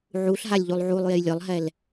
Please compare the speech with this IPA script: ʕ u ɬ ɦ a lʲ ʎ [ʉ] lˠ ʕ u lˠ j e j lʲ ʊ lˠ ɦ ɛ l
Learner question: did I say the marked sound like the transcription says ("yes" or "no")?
no